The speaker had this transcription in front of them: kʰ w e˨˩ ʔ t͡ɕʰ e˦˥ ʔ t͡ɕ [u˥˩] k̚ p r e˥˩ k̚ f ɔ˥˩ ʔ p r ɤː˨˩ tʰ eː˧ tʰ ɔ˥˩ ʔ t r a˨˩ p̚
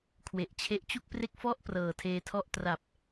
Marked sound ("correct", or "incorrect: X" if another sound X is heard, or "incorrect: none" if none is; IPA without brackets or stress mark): correct